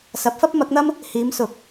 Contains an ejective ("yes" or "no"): no